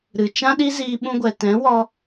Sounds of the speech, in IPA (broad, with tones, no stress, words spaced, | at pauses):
ɾɨ˨ t͡ʃã˦ɗi˦ziː˧ ɓũ˧ɡʷɛ˨ tɛ̃˨˦wɔ˧